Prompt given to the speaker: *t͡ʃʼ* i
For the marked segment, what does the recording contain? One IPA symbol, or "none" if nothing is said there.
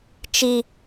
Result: t͡ʃ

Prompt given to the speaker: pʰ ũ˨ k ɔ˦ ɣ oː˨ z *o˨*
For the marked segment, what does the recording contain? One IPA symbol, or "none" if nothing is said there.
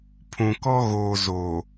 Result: o˨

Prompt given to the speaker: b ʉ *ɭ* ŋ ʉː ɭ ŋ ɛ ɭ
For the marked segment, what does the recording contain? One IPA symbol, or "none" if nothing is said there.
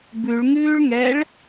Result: ɭ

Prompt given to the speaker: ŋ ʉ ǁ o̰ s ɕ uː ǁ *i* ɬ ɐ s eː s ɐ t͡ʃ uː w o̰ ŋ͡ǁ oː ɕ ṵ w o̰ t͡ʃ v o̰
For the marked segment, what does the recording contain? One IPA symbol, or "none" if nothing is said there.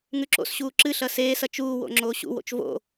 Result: ɨ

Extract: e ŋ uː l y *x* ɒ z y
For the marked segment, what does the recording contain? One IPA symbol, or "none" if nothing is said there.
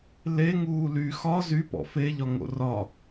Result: x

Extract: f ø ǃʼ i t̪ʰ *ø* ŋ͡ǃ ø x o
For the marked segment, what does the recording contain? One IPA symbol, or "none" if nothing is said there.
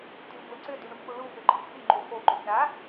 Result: y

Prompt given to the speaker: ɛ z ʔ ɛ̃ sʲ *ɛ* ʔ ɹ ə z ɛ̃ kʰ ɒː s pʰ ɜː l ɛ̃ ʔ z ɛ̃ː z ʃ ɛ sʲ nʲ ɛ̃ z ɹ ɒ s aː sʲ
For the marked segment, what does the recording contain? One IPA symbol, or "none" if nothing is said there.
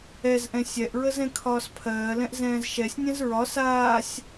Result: ɛ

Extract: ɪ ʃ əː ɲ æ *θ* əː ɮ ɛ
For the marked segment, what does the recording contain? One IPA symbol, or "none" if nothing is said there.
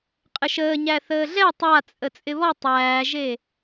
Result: θ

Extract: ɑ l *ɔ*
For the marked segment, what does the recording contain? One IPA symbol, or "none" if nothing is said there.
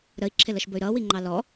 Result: ɔ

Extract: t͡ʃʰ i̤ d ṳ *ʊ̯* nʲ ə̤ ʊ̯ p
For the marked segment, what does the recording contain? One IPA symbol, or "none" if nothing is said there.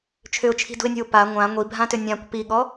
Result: ɪ̯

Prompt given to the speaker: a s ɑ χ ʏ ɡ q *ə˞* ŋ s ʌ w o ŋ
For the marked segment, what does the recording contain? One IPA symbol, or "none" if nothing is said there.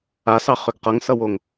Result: ʌ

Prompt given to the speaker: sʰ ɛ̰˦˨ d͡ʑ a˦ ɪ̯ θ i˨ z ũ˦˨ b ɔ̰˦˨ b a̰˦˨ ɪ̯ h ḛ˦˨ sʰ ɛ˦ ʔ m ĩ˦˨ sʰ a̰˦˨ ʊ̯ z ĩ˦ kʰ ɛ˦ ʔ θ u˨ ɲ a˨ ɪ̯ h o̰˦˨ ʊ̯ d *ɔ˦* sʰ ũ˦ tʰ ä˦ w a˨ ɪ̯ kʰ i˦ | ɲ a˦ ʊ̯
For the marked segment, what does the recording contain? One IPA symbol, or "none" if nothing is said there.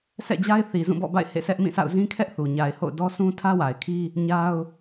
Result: ɔ˦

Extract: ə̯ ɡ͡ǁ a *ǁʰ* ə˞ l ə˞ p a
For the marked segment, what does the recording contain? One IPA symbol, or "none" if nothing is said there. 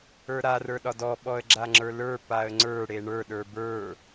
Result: ŋ͡ǁ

